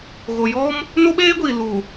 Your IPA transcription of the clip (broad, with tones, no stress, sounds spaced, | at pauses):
ɣ o˨ j ɔ˦ m | n o˦ ɓ eː˦ ɡʷ iː˨ l u˨